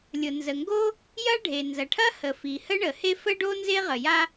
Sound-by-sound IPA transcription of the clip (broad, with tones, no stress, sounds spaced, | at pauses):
lʲ ʊ˩ n z ə˩ ŋ ɡ o˥ | j ɐ˥ ɖʱ e˩ n z ɐ˩ ʈʰ ɐ˥ h ə˩ f i˩ h ə˥ ɳ ə˩ h e˥ f ə˥ ɖ o˥ n z e˥ ʁ ə˩ j a˥